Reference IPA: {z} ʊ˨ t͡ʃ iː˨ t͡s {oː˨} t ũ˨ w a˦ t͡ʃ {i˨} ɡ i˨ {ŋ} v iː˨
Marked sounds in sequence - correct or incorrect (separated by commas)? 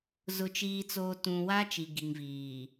correct, correct, correct, correct